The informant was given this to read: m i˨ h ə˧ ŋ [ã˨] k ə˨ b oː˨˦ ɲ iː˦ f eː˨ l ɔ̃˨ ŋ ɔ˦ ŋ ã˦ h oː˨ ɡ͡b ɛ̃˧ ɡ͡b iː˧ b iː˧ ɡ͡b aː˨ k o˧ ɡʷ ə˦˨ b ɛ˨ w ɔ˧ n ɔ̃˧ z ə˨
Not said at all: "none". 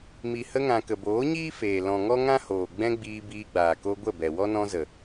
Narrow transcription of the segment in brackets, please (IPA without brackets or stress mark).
ã˨